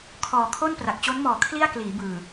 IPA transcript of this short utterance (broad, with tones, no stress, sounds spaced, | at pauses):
kʰ ɔː˨˩ kʰ o˥˩ n p r a˨˩ k̚ t͡ɕ o˦˥ n m ɔː˨˩ kʰ l i˥˩ a̯ k l iː˩˦ b ɯː˨˩